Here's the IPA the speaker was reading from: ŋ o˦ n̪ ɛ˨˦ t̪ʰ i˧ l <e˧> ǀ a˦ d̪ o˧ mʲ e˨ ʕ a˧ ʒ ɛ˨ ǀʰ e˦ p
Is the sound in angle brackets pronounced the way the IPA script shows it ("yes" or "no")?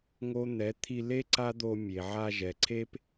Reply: no